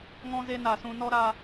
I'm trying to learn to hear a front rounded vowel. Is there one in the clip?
no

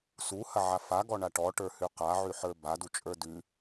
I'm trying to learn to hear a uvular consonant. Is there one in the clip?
yes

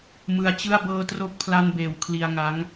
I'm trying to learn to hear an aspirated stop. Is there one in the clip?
yes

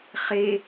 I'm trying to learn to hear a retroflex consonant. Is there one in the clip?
no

